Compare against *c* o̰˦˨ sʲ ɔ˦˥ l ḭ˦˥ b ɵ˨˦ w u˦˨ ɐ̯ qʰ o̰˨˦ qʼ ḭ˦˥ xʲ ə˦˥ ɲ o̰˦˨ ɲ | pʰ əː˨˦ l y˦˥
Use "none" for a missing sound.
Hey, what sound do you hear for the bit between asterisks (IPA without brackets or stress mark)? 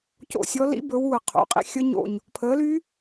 c